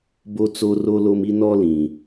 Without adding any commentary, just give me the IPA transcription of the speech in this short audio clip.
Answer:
b o˦ t͡s o˦ r o˦ l o˦ m i˦ n ɔ˦ l ĩ˨

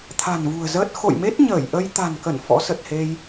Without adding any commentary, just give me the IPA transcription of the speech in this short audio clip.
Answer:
t̪ʰ a̤˨˩ n v ṳ˨˩ ə̯ z əː˦˥ t̚ x o̰˧˨ j m e˦˥ t̚ ɲ əː˧˩ j ʔ ə˧ j t̪ a̤˨˩ n k ə˧˩ n f ɔ̰˧˥ s ə˨˩ t̚ h e˧ j

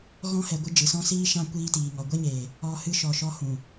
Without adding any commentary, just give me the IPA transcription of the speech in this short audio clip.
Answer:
ɣ ɔ̃˧ h ɛ˨ ɡʷ ɨ˧ d͡ʒ ɨ˨ s ɔ̃˦ s iː˦ ʃ ã˦ kʷ iː˧ t iː˨ ŋ ɔ˨ ɡʷ ɛ˦ ɲ eː˨ | ɔ˧ h ɨ˧ ʃ ɔ˨ ʃ ɔ˧ h ũ˨

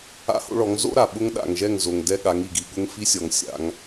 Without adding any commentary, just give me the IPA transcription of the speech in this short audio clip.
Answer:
a̰˦ h o̰˦ ɭ ɔ˨˦ ŋ z o̰˦ ɾ a˨ ɓ ʊ˦ ŋ ɗ a̰˨ ŋ ʒ ɛ˦˨ ŋ z o˨ ŋ d ɛ˦ ɠ a˨˦ ŋ i˨ ɡ i˨ ɠ ʊ˦ ŋ f i˦ sʲ ɔ˨ ŋ sʲ a̰˨˦ ŋ

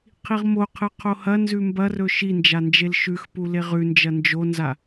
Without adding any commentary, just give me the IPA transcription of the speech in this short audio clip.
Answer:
qʰ i ʁ m o qʰ ɨ qʰ o h ɐ n z ʉ m b ɐ r ɵ ʃ i n d͡ʒ a n d͡ʒ e l ʃ ʉ x p u l e ʁ ʉ n d͡ʒ ɐ n d͡ʒ o n z a

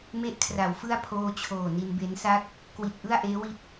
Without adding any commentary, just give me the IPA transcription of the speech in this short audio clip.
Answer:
m e˦˥ ʔ kʰ r a˩˦ w f ɯ˥˩ a̯ pʰ oː˧ t͡ɕʰ oː˨˩ n i˧ n b e˦˥ n s a˥˩ k̚ | k w i˨˩ t̚ ʔ ɯ˥˩ a̯ ʔ eː˦˥ w i˦˥ t̚

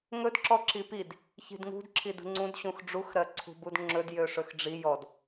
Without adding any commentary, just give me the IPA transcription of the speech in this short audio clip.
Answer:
ŋ ɵ d ǁ ɔ ǁ i p i d | ç i̤ d ŋ ṳ d ǁʰ i d ṳ ŋ͡ǀ ũ d ɕ ũ x ɖ͡ʐ u x ɾ ɜ ǀʰ ṳ b u d ŋ͡ǁ ɵ d j ø ʂ ɵ x ɖ͡ʐ i j ɔ d

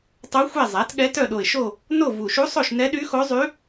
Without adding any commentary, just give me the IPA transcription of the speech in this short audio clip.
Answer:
tˤ o˧˥ xʷ ɛ˦˨ zˤ æ˩˥ t ɠ ɛ˧˥ t œ˦˨ ɗ o˨˩ ɪ̯ ʃ o˦˨ | n o˦˨ v u˨˩ ʃ u˧˥ sˤ o˦˨ ʃ n ɛ˧˥ ɗ y˧˥ x o˧˥ zˤ y˧˥

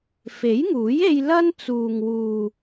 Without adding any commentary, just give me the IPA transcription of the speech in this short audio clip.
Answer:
f e˨˥ j ŋ uː˨˥ j e˧ j l ɐ˥ n t͡s uː˨ ŋ w uː˨

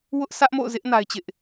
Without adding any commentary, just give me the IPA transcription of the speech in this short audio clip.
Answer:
w ʊ˦ ʔ s ä˦ ʔ m o̰˦˨ ʊ̯ z ɪ˦ ʔ n a˦ ɪ̯ t͡ɕ ɪ˦ ʔ

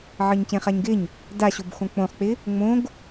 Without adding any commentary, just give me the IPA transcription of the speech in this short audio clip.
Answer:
ʕ ɤ ɲ c ẽ χ a ɲ ɡ ɪ ɲ | d a ɕ o b x õ k͡p õ χ k͡p ɪ | ŋ͡m õ ɡ

